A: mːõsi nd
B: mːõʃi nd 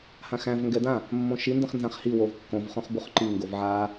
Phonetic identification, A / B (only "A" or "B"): B